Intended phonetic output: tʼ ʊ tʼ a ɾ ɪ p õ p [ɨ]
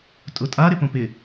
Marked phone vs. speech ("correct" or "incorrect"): incorrect